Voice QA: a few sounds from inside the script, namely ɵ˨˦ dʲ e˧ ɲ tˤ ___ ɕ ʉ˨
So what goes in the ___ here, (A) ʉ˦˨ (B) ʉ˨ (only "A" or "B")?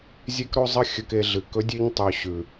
B